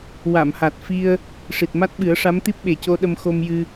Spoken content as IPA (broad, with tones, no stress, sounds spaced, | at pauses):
w a˨˩˨ m h a˨˩ t̚ f i˧ ə̯ | ʂ i˨˩ t̚ m a˦˥ t̚ ɓ ɨ˨˩˦ ə̯ ʂ a˧˥ m t̪ i˦˥ p̚ ɓ e˨˩ c o˧ ɗ ə˧ m x o˧ m j ɨ˧